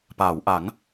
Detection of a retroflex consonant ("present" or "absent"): absent